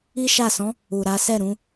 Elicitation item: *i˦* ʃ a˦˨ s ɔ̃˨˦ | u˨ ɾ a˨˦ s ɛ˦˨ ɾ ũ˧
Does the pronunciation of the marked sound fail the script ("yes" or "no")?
no